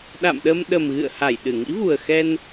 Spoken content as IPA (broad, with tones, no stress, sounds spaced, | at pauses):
ɗ a̰˧˨ m ɗ ə˧ m ɗ ə˨˩ m ɣ ɨ̰˧˨ ə̯ h a˧˩ j ɗ ɨ˧˩ ŋ ḭ˧˥ v u˨˩ ə̯ x ɛ˧ n